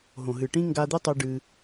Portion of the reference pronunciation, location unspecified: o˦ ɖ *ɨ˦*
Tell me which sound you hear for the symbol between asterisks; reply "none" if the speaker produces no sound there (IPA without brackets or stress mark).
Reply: ɨ˦